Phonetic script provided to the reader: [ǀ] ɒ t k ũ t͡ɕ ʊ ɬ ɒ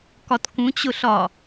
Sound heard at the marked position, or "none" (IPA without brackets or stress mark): k